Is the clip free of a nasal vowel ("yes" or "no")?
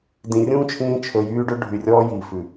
no